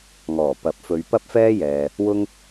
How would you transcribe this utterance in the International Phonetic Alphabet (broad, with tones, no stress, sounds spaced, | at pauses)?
ŋ ɔː˨˩ p ɐ˨˥ p̚ f ɵ˨˧ ɥ p ɐ˥ p̚ f ɛː˥ j ɛː˨ | w ʊ˥ ŋ